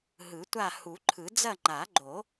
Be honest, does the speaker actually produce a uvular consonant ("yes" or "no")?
no